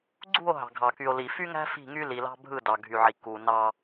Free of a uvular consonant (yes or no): yes